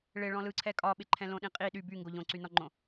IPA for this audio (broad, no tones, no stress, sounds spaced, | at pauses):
ɭ ɪ ɭ ɔ̃ l ɯ ǀʰ ɛ kʼ ɒ ɓ ɪ ǃʰ ɛ̃ l õ ɗ ĩ qʼ i ɗ y b y ŋ ɡ o ʎ õ ǀ y n ɔ ŋ͡ǃ õ